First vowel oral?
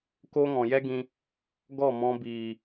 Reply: yes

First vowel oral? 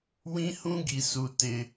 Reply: no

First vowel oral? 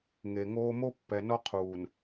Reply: yes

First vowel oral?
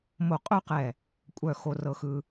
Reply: yes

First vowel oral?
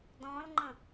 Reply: no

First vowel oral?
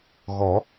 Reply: yes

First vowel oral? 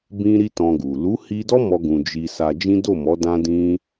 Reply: no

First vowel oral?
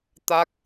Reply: yes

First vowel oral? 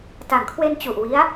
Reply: yes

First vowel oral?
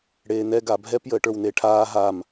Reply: yes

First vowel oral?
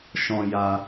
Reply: no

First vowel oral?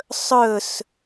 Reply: yes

